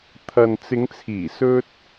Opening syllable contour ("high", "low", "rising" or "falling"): low